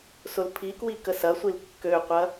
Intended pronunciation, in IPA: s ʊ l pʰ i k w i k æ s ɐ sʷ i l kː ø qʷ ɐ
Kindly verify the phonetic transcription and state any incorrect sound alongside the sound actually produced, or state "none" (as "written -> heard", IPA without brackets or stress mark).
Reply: æ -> ə